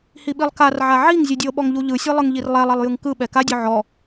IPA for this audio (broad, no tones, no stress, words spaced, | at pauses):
hiɓilˠkarʕa ʕiŋ zʲɯdʲɤɓɔŋ ʎuʎɯsʲɛ lˠɯŋʎirlˠɛlˠɛlˠ jɯŋkɯɓɛ kadʲɔ ʕɔ